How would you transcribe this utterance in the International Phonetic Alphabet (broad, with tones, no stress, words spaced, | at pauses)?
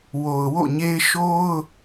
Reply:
wo˨ʊ̯wo̰˦˨ɲe˦ɪ̯ ʃo˦ʊ̯